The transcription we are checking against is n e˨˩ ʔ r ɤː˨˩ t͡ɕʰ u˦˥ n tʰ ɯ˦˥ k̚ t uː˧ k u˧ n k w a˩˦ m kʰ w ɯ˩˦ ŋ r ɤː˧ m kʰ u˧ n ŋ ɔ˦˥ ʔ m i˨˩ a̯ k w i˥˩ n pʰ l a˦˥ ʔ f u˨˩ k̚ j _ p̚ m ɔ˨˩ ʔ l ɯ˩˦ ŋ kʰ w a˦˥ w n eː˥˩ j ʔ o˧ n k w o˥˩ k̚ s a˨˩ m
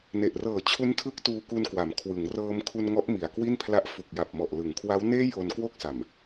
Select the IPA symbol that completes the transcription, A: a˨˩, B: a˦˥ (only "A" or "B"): A